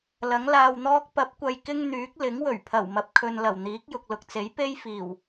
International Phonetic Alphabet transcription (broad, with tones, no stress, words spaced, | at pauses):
lɐ˨˥ŋlaː˧wn̪ɔː˥k̚ pɐ˨˥p̚kʷɐ˨j kɪ˥ŋn̪yː˨˥k̚ lɪ˨˥ŋwɵ˨˩ɥ pʰɐ˨˩wmɐ˨p̚kʰɵ˨nlɐ˨˩w n̪iː˨˥k̚jʊ˨k̚lʊ˨k̚t͡se˨˥j pe˥jfiː˨˩w